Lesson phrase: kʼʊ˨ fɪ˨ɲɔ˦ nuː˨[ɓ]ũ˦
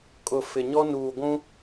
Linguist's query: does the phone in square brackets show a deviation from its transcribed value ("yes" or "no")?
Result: yes